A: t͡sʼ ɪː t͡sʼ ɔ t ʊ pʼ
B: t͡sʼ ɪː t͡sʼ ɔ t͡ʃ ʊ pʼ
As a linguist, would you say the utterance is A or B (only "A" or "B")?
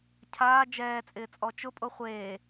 B